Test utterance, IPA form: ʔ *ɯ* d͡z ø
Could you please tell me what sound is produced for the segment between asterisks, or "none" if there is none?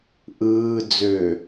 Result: ɯː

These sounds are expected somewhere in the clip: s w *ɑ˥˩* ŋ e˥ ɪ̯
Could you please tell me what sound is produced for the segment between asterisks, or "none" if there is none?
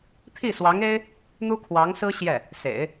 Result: ɑ˧˥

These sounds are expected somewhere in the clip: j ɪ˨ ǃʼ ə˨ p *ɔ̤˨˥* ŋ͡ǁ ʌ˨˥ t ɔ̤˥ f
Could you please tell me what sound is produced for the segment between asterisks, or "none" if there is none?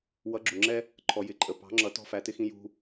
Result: ɑ̤˨˥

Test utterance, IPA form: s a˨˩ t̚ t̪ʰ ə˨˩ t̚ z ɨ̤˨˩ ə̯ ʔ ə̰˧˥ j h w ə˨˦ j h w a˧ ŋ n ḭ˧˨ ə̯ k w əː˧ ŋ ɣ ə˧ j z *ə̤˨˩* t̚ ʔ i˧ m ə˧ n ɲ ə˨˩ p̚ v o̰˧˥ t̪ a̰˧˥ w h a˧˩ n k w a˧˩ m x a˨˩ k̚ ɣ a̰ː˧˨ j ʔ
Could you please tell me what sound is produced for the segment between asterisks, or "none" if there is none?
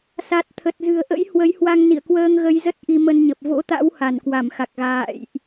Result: ə˦˥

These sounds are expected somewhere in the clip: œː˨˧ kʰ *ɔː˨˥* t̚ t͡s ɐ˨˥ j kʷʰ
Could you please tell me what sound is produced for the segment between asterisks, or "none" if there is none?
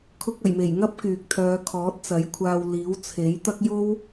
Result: ɔː˨˥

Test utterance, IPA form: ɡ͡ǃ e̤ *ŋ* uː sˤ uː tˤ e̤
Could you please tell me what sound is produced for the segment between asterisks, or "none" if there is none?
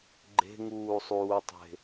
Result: ŋ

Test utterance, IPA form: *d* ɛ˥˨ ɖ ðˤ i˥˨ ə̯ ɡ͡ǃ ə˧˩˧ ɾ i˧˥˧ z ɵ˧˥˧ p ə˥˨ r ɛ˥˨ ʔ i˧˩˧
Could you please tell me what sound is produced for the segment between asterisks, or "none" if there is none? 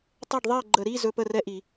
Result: tˤ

